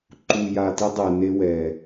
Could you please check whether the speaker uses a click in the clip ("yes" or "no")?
yes